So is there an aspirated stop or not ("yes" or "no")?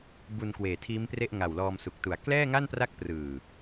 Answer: yes